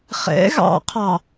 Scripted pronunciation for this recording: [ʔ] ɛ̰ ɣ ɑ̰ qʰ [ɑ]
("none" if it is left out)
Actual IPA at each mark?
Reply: χ, ɑ

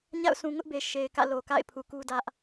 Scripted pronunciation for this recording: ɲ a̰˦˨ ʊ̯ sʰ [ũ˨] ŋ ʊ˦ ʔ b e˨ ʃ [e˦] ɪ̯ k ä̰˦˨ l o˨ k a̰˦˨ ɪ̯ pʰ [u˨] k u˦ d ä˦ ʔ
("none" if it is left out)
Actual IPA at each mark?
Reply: ũ˨, e˨, u˨

